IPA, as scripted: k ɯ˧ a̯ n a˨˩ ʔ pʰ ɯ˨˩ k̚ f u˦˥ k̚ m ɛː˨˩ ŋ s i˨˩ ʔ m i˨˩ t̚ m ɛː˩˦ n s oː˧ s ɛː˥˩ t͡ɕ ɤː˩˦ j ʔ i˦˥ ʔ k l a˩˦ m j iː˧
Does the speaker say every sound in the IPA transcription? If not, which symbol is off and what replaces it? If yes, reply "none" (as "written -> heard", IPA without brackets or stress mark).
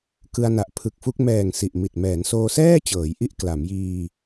none